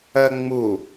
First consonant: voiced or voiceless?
voiced